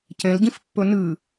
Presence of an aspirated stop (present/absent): absent